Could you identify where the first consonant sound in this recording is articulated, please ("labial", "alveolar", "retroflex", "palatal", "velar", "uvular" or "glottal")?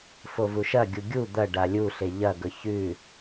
labial